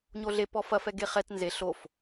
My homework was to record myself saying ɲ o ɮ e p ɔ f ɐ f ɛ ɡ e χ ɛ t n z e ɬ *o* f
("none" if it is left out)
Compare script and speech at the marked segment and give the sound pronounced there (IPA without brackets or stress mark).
o